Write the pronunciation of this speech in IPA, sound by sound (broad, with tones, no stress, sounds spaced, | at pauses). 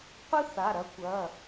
qʷ ɨ˥ θ a˩˧˩ ɾ ɐ˥ kʷ ɐ˩˧˩